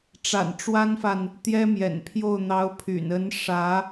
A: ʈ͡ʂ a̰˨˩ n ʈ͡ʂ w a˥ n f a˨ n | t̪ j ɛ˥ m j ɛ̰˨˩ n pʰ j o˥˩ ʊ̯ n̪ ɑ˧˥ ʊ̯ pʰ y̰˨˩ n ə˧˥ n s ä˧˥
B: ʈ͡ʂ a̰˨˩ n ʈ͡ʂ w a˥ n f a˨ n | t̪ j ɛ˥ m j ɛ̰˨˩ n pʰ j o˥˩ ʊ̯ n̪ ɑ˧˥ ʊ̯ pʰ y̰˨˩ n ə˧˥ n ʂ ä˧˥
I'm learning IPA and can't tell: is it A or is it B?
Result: B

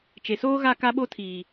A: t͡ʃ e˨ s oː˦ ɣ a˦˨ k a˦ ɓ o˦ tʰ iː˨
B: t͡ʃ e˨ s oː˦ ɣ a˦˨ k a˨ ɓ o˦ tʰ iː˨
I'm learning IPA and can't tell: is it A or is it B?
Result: A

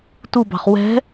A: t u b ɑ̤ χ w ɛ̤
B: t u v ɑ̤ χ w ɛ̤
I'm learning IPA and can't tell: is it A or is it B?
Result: A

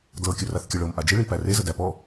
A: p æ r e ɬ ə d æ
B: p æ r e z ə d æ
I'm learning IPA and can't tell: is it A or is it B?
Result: B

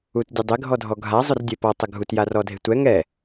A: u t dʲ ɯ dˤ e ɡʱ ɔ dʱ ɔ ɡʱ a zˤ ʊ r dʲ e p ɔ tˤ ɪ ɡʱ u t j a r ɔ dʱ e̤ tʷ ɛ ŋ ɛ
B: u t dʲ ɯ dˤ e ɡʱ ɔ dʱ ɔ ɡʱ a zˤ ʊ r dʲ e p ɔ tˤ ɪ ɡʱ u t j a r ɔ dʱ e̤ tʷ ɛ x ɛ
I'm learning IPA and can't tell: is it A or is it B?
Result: A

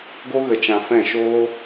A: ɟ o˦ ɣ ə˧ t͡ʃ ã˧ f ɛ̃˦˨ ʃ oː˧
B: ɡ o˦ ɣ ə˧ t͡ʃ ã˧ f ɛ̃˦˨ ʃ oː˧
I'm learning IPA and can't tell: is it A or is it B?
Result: B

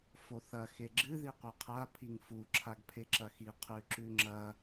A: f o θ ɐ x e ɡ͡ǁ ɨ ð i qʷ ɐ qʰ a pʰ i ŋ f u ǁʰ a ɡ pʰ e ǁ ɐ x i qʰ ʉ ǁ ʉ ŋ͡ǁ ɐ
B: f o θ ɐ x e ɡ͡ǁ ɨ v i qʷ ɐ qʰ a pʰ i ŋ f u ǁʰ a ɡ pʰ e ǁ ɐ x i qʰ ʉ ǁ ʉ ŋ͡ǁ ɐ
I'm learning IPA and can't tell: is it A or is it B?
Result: A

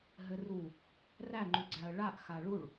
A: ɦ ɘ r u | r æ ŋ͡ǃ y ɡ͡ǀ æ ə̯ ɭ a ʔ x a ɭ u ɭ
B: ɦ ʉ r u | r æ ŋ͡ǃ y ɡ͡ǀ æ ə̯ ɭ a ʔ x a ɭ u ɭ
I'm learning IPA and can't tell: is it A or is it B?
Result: A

